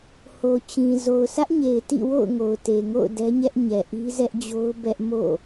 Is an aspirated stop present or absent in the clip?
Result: absent